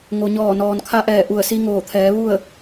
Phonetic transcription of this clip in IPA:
ŋ o˩ ɲ ɔː˧˩ n ɔː˩ n kʰ a˧ ʔ ɛː˧˩ ʔ u˧˩ ə̯ s i˧ ŋ oː˧˩ t̪ʰ ɛː˩˧ ʋ u˥˨ ə̯

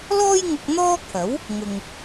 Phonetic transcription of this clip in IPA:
l ɔː˥ j ŋ ʊ˧ k̚ n̪ ɔː˥ kʰ ɐ˨˥ w | ŋ ʊ˨ ŋ

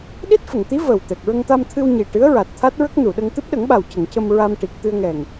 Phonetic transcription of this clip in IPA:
ɗ i˦˥ t̚ f ə˨˩˨ ŋ t̪ i˧˥ v ə˨˩ w t̪ ɛ˨˩ k̚ ɹ ə˧ ŋ t̪ a˧ m t̪ʰ ɨ˧ w ɲ i˨˩ ʈ ɨ˧˥ ə̯ ɹ a˨˩ t̚ t̪ʰ a˦˥ t̚ ɹ ə˦˥ k̚ n u˨˩˨ ɗ ə˧ ŋ t̪ ɨ˦˥ p̚ ɗ ə˨˩˦ ŋ ɓ a˨˩ w c ə˨˩˨ ŋ c ə˧ m ɹ a˧ m ʈ i˨˩ k̚ t̪ ɨ˧ ə̯ ŋ ɛ˨˩ ŋ

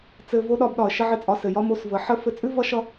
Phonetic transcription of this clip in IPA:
t͡s ɘ˧ v o˦ ɗ ɒ˧ b ɗ ɒ˨ ə̯ ʃ ə˦ ʕ ɘ˦˨ t͡sʼ ɒ˧ s ɘ˨ j ɒ˦ m o˧ s v ə˨˦ ħ ə˦ f ɘ˧ t͡sʼ ʉ˦ v ʌ˦ ʃ ʌ˦

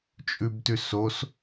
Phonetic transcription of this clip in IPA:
t͡ʃʼ ʉ b t ʉ s o s

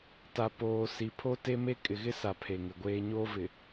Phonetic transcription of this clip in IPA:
t a˨ p oː˨ s i˨ pʰ o˦ t e˦ m e˦ kʼ ɪ˨ ɣ ɪ˦ s a˨ pʰ e˨ ŋ ɪ˨ ɡʷ eː˦ ɲ oː˦ v ɪ˨

